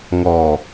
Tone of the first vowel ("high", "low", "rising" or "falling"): low